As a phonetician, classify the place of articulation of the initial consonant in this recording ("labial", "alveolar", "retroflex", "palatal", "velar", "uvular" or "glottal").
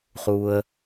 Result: uvular